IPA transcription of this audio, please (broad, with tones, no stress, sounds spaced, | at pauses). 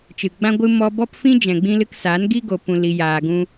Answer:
t͡ʃ ɨ˨ ɡ͡b ã˦ ɡʷ ɨ˧ m ɔ˧ b ɔ˦ p f ĩ˦ d͡ʒ ɛ̃˨ ɡ͡b ĩ˧ l ɨ˧ k s aː˨˦ n ɡ i˦ ɡ o˧ p ũ˧ l i˧ j aː˧ ɡ ũ˦